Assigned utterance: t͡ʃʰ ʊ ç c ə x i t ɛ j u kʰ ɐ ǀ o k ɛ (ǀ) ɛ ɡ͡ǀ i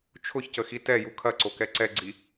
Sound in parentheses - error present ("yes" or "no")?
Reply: no